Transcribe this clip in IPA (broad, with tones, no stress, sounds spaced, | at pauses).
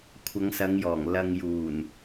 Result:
kʷʰ ɐ˨˧ ŋ s ɐ˨˧ ŋ j ɔː˨˩ ŋ l ɐ˨ ŋ j uː˨˩ n